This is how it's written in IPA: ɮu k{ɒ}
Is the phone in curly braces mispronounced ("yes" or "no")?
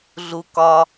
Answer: no